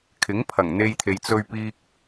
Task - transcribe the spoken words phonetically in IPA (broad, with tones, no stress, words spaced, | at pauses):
kʰɪ˨˥ŋpʰɐ˨˩ŋn̪e˧jt̪ʰe˨j t͡sɵ˨ɥpiː˨k̚